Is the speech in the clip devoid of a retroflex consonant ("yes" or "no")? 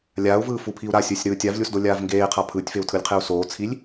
yes